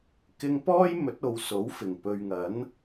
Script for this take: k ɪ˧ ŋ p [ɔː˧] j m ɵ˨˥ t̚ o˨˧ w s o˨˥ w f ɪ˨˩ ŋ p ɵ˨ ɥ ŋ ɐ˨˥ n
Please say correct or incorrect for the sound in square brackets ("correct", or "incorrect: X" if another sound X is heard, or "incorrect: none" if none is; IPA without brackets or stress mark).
incorrect: ɔː˥